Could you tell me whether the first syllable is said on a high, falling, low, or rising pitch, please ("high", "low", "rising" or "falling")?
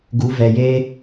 rising